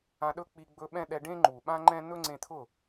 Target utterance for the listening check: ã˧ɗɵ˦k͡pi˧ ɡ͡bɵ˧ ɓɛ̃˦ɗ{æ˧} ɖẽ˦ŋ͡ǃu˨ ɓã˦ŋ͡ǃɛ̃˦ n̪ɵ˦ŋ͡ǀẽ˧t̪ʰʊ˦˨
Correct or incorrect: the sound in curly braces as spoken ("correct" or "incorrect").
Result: incorrect